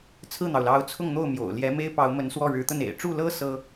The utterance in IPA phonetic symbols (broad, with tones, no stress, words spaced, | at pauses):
t͡sʰɹ̩˥˩n̪ɑ˩ʊ̯lɑ˧˥ʊ̯ t͡sʰʊ˥˧ŋn̪o˥˩ʊ̯ mjo̰˨˩ʊ̯ljɛ˧˥me˥ɪ̯ pɑ˧˥ʊ̯mə˧˥nswɔ˥˩ ɻɻ̩˧˥t̪ə˥˩n ḛ˨˩ɪ̯ʈ͡ʂu˥˩lɤ˥ sɤ˥